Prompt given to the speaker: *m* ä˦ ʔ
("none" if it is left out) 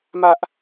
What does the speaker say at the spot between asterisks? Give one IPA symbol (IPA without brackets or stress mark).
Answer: m